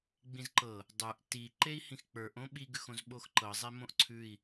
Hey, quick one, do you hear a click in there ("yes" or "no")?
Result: yes